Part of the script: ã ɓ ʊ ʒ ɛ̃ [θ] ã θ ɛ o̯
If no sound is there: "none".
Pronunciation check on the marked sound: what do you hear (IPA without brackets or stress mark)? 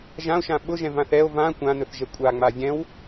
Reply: v